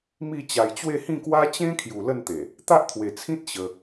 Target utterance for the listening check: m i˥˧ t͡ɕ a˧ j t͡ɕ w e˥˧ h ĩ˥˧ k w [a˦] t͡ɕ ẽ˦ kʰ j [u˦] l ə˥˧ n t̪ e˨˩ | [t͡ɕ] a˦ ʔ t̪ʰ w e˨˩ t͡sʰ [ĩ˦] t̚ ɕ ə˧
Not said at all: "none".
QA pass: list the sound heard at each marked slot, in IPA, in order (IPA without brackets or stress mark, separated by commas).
a˦, u˨˩, t̪, ĩ˦